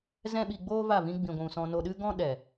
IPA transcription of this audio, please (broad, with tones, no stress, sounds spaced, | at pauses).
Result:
z ɛ̃˦ ɓ i˧ ɡ͡b oː˦ v a˦˨ v ĩ˧ ɡ͡b ĩ˨ ɡʷ ũ˨ s ɔ̃˧ n o˧ ɗ ɨ˦ ɡ ɔ̃˦ ɗ ɛ˨